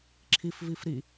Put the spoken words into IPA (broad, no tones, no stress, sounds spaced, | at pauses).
ǁʰ i f v i f ɾ i